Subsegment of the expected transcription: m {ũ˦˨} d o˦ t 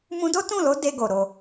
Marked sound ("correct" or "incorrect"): incorrect